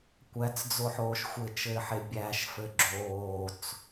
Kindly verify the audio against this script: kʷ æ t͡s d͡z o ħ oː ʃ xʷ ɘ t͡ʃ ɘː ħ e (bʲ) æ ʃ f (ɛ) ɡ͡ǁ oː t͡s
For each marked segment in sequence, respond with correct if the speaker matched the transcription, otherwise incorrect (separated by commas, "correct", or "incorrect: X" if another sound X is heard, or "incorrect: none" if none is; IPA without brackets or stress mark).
correct, incorrect: ɘ